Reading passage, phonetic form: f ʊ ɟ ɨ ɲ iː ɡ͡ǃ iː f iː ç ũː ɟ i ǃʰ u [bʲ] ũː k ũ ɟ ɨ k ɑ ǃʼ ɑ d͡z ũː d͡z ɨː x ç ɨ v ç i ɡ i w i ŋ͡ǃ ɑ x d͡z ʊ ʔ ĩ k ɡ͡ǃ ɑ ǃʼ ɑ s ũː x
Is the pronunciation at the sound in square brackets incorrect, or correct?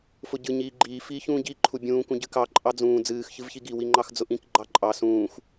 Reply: correct